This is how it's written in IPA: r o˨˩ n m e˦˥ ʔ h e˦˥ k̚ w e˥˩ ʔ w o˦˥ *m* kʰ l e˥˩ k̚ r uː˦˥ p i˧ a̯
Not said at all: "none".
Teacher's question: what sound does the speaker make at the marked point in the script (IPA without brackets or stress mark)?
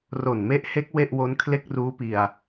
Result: n